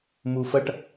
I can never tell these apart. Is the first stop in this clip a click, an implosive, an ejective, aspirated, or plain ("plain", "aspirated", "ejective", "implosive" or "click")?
plain